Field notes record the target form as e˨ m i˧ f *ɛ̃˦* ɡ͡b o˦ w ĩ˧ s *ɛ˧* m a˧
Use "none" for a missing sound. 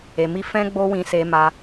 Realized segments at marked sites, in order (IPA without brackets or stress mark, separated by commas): ɛ̃˦, e˧